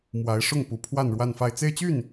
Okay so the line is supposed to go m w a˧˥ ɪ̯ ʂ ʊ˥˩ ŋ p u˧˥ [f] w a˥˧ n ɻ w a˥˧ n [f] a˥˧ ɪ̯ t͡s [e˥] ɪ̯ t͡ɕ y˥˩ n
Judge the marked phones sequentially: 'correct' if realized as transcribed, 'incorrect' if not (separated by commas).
incorrect, correct, incorrect